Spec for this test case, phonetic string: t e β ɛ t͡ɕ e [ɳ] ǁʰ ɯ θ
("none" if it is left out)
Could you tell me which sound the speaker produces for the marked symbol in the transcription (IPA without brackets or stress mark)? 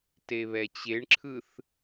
ɳ